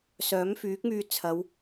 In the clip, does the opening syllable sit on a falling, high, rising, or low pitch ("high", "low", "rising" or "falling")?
rising